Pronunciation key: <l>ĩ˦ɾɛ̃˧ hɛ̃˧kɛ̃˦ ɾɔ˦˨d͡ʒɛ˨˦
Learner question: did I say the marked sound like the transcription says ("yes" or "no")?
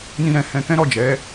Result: no